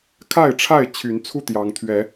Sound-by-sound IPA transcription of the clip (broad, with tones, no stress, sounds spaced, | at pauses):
kʰ a˥˨ ɪ̯ ʈ͡ʂʰ a˥˨ ɪ̯ t͡ɕʰ y˨˦ n t͡sʰ u˥˨ t̪ j ɑ˨˦ ŋ t̪ʰ ɥ ɛ˨˦